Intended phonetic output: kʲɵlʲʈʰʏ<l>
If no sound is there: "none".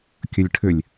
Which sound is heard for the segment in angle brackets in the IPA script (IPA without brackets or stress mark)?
lʲ